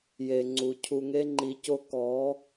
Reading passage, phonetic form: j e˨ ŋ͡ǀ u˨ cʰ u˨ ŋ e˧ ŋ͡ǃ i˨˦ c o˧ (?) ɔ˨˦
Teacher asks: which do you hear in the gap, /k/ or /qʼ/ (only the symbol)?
k